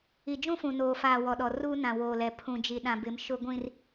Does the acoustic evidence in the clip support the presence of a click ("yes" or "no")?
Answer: no